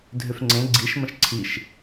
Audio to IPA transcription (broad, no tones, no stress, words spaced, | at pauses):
dʱʏfŋ͡ǀẽ ɡ͡ǀiʃ mə̃ʃǀʰiʃ